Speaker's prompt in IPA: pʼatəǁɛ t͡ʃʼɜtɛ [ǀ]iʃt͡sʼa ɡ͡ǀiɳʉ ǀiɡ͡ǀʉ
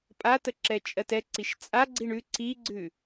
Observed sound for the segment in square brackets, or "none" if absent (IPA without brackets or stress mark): ǀ